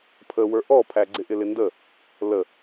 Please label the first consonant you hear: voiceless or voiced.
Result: voiceless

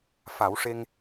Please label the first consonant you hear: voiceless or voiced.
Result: voiceless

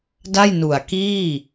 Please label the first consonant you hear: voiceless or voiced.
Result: voiced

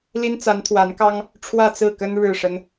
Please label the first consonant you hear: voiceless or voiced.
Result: voiced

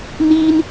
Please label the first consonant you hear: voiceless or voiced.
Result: voiced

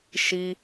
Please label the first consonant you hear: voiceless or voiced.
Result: voiceless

